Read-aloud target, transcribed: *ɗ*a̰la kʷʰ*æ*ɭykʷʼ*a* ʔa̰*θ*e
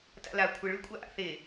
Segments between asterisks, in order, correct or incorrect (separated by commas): incorrect, incorrect, correct, correct